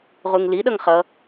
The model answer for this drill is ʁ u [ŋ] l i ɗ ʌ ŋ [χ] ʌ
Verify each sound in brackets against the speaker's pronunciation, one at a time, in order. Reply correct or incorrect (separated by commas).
correct, correct